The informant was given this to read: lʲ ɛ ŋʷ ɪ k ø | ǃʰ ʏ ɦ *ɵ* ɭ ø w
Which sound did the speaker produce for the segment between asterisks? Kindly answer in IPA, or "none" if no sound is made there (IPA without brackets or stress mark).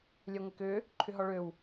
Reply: ɔ